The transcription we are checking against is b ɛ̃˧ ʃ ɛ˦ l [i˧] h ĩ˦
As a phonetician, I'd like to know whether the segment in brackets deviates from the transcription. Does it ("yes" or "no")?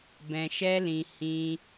yes